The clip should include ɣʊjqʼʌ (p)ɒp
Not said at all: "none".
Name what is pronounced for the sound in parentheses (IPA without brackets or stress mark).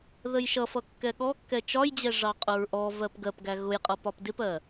p